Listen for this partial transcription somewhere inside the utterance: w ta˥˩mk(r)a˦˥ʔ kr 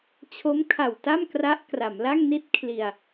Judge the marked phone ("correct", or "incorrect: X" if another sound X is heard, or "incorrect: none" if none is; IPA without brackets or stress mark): correct